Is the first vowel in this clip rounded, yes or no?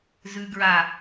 yes